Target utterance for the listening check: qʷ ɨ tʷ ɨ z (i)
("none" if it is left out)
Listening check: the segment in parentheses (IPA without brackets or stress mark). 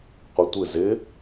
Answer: ɪ